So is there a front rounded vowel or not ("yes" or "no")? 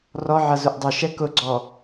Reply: no